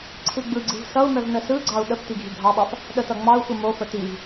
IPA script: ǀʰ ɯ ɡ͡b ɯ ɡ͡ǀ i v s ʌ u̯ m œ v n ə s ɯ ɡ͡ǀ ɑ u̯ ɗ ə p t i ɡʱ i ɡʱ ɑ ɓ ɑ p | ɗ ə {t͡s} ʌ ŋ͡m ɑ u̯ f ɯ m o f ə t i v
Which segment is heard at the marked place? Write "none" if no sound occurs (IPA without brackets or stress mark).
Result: t